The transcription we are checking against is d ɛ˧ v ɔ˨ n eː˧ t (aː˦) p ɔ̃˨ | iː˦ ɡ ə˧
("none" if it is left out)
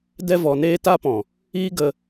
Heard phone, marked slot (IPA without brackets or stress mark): a˦